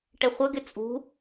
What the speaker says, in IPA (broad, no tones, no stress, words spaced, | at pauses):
ʈɛχʷəɡɪ t͡sʼṳ